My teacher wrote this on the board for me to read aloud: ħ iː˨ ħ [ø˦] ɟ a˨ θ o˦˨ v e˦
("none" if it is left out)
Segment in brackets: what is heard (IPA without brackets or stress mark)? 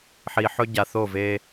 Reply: ɵ˦